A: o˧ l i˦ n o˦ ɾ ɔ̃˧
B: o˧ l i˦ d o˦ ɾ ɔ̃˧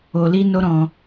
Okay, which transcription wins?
A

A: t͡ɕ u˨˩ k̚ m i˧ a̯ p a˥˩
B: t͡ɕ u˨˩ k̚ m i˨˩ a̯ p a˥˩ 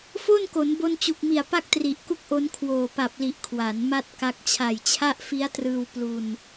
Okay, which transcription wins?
B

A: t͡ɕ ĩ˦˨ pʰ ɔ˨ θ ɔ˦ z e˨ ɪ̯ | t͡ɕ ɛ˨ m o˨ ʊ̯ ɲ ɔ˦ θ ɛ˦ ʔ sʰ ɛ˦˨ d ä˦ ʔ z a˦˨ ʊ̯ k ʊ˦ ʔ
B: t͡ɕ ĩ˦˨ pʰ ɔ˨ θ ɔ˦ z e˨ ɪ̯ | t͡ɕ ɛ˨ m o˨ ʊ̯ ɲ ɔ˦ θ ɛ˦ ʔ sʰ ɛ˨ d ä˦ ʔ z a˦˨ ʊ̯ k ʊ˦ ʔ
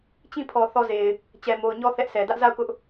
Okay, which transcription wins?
B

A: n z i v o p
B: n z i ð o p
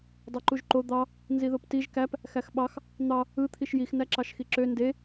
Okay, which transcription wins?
B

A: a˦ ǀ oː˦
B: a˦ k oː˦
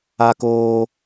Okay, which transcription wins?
B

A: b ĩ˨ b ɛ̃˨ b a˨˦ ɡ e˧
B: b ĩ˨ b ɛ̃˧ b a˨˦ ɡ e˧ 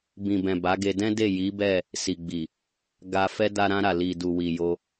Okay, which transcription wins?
A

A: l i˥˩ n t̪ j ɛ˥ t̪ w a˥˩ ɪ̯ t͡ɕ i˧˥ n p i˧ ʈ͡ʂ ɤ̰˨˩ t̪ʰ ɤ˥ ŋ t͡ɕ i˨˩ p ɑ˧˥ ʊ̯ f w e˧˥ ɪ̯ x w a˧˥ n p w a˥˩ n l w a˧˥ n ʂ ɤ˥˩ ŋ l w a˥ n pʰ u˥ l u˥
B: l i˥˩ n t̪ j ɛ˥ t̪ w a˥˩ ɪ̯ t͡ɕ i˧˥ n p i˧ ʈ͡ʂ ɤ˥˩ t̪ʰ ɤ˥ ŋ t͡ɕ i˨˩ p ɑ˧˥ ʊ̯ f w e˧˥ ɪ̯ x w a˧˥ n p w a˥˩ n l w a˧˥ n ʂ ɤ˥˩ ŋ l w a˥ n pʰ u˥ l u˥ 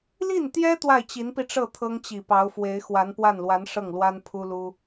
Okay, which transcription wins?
B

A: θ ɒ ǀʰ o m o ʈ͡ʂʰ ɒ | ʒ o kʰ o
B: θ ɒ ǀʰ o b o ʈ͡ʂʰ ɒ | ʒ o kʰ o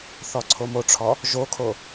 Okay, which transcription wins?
A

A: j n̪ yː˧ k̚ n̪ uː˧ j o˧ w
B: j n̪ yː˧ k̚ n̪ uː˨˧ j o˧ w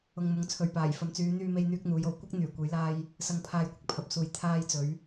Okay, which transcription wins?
B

